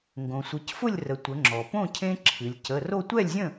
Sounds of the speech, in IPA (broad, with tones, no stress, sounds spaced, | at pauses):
ŋ ɡ õ˩ sʷ ɨ˩˧ c f ʊ˥˨ lʲ r ə˩˧ tʷ ə˩˧ ŋ͡ǁ ɔ˩ p õ˥˨ cʰ ẽ˦ ǁʰ ɨ˩˧ lʲ c ə˩˧˩ r o˥˨ tʷ ɛ˥˨ lʲ zʲ ə̃˥˨